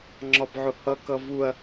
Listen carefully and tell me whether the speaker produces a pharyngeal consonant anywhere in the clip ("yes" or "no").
yes